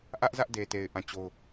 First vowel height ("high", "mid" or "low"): low